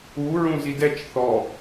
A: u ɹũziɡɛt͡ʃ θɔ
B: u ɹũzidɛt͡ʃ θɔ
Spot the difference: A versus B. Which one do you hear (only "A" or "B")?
B